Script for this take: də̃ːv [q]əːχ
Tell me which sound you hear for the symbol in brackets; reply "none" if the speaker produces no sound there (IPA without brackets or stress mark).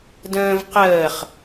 q